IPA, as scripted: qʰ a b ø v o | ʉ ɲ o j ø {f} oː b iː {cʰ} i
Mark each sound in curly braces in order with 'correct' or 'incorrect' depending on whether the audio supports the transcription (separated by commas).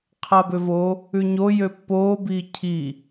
incorrect, correct